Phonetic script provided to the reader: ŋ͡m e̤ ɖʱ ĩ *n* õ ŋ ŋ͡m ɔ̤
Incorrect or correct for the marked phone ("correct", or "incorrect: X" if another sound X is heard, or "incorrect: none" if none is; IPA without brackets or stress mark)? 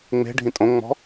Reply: incorrect: tʼ